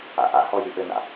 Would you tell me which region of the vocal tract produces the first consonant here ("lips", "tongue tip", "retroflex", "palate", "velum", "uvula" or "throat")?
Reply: throat